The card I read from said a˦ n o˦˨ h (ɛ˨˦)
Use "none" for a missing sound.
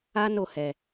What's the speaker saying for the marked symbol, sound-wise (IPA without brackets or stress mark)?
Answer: ɛ˨